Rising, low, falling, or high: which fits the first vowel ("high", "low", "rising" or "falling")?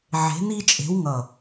rising